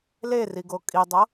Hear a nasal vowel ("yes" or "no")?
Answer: no